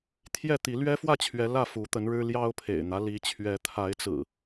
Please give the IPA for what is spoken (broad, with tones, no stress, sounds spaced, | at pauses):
t̪ʰ j ɛ˥˨ t̪ i˨˦ l ɥ ɛ˦ f w ä˥˨ t͡ɕʰ ɥ ɛ˨˦ l ä˥˨ f u˨˦ t̪ ə˨˦ n ɻ ɻ̩˦ l j ɑ˦ ʊ̯ pʰ ḛ˨˩ ɪ̯ n̪ ä˦ l i˨˦ t͡ɕʰ ɥ ɛ˨˦ t̪ʰ a˨˦ ɪ̯ t͡s ɹ̩˨˩